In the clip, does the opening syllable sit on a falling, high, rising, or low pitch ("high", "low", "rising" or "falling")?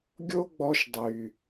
high